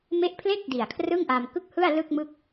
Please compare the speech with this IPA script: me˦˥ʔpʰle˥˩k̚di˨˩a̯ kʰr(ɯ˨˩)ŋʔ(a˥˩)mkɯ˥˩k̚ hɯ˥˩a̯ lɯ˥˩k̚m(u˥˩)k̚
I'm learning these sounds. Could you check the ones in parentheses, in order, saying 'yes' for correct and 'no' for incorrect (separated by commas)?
no, no, no